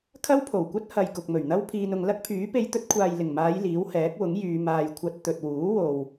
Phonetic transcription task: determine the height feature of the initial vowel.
low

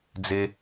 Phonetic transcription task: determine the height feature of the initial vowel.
mid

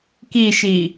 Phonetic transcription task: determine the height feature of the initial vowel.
high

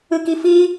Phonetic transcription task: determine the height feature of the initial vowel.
high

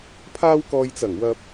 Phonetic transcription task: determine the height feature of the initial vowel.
low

